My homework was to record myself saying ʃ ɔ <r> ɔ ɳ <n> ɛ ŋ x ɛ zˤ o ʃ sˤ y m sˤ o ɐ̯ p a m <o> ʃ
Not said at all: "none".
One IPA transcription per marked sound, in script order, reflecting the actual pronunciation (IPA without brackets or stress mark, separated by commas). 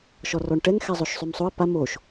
r, ʈ, o